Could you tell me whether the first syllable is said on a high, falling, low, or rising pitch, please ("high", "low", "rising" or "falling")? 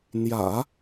low